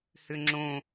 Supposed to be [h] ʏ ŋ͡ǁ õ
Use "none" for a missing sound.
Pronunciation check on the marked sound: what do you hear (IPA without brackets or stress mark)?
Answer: h